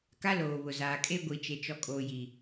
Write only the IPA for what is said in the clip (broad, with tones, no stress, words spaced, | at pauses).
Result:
ka˦loː˨βʊ˨ zaː˨kʼe˦ɡʷi˨ t͡ʃe˨ t͡ʃɔ˨kʼoː˨ji˨